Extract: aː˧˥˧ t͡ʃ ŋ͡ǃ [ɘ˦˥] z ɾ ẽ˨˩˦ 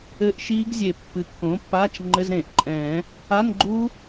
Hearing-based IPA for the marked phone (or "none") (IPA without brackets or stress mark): ɘ˧˥˧